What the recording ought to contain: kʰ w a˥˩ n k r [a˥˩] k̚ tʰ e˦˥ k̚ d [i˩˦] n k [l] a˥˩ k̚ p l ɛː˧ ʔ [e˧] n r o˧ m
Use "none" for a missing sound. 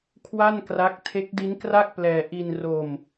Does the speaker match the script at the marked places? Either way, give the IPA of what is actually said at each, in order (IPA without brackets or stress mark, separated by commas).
a˦˥, i˦˥, r, i˧